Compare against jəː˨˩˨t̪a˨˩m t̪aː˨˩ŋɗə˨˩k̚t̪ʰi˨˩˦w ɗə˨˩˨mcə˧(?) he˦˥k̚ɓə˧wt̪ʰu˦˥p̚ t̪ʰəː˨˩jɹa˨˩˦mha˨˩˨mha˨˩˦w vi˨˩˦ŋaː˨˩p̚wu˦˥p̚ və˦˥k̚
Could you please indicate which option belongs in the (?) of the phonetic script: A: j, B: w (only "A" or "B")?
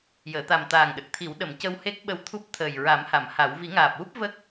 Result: B